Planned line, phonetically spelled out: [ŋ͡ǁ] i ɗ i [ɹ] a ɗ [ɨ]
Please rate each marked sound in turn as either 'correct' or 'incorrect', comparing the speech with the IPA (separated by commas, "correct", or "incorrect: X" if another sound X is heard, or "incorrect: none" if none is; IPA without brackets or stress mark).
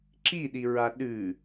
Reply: incorrect: ǁ, correct, correct